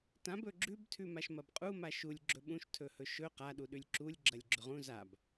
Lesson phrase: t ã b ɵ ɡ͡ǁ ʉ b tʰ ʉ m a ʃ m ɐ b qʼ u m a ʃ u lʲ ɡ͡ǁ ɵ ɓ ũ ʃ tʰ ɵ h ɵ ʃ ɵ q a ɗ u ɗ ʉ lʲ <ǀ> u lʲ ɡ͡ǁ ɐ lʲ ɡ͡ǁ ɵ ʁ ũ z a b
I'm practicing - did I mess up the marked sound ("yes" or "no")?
yes